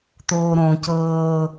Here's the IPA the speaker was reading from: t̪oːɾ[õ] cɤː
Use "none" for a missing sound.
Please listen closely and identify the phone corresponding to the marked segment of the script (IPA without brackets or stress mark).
õ